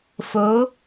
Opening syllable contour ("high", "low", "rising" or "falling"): rising